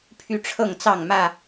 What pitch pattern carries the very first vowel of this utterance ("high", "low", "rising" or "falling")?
high